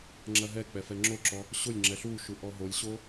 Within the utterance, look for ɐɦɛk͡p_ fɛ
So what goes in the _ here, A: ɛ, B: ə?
A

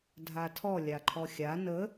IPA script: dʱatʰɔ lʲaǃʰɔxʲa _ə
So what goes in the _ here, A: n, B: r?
A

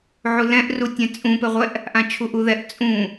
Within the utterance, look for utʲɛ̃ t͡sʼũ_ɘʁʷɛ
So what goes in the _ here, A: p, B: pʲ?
A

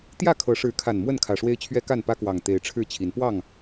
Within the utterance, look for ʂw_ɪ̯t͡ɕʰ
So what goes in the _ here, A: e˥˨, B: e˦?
B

